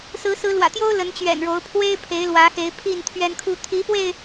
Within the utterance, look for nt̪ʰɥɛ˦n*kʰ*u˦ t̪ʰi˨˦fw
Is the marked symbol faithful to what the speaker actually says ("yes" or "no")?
yes